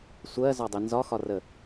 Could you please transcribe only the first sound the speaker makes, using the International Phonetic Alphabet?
sʷ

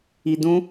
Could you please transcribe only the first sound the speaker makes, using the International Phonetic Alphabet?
i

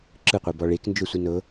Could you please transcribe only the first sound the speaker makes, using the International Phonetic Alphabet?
ǁ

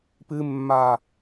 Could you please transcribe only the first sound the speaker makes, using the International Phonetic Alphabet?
p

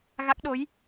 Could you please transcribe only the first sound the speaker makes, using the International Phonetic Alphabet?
ɣ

